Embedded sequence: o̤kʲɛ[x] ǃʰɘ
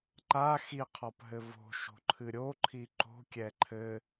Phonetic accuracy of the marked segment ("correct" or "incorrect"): incorrect